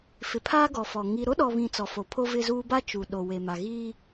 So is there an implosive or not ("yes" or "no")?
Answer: yes